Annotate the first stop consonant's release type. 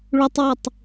plain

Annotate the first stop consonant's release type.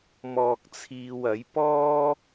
plain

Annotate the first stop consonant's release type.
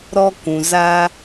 plain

